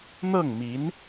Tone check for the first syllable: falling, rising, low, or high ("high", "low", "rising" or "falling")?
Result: falling